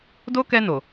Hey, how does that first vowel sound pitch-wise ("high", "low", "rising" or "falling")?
high